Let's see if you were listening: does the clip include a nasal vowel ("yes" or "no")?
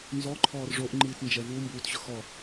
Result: no